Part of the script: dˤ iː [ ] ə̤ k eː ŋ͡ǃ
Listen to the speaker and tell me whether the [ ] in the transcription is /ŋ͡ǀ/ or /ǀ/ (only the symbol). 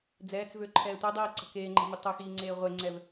ǀ